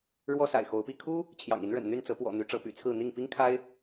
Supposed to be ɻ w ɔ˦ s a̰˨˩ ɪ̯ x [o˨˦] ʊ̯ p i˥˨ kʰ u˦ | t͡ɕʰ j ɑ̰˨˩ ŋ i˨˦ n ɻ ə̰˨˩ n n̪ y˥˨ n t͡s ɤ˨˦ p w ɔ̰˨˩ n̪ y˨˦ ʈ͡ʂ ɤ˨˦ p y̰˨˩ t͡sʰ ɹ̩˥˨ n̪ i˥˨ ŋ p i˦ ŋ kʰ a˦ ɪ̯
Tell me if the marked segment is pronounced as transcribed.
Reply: yes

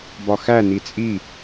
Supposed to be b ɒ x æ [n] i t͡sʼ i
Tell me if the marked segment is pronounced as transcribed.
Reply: yes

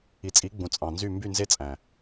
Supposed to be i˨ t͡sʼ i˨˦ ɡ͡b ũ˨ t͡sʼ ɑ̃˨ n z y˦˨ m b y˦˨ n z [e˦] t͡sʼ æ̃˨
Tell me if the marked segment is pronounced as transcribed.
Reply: yes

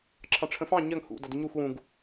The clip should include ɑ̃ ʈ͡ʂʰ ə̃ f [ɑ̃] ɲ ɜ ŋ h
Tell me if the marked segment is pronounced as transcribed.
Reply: yes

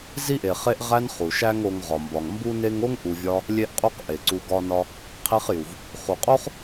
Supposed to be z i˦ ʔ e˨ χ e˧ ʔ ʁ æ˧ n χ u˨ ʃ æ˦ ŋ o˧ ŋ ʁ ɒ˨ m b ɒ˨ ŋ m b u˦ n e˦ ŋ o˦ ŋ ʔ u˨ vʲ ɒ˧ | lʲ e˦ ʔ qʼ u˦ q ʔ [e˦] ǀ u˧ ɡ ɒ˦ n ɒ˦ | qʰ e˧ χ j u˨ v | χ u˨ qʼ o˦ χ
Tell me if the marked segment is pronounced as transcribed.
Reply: no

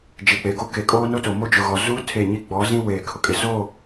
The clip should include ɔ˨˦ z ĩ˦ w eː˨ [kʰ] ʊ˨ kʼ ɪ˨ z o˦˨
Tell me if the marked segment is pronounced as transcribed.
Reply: yes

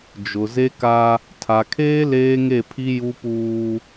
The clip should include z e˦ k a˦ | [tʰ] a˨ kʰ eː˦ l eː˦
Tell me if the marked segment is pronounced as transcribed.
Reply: yes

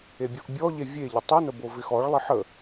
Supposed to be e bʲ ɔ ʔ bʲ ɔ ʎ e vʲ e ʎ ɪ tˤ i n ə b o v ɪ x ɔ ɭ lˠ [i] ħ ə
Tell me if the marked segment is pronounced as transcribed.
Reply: no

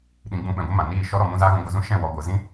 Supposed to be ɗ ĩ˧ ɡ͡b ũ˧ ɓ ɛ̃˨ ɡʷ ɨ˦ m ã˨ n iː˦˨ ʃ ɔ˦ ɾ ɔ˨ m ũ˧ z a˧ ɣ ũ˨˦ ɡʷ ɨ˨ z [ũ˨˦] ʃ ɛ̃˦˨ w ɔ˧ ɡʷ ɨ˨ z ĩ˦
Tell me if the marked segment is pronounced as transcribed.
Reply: no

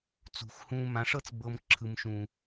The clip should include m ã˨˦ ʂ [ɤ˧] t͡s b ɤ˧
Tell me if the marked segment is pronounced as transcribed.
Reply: no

